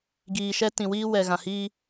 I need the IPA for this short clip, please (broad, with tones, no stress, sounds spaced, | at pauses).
ɡ iː˨ ʃ ɛ˦ t ĩ˨ w iː˦ w ɛ˨ ɣ ã˨ h iː˦